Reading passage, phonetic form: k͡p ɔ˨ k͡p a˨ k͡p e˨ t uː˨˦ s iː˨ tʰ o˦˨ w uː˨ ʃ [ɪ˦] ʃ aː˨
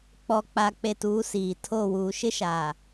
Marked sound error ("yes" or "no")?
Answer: no